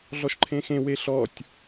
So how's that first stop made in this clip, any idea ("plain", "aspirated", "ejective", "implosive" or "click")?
click